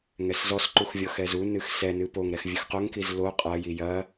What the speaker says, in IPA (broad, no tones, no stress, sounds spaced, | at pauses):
ŋ ɛ s z ɔ s ǃ u x vʲ ɔ x ɛ z u n ɨ x s ɛ n ɨ p o ŋ ɾ ɛ x vʲ ɨ x q o ŋ k i z l o qʼ ɐ j i j ɐ